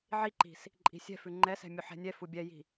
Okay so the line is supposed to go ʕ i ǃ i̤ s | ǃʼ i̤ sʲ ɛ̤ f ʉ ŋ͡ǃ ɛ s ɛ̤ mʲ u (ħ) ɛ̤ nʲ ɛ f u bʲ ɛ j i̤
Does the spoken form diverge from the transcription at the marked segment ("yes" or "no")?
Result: no